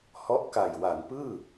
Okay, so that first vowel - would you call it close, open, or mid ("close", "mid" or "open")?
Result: mid